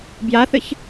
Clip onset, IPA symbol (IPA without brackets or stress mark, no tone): b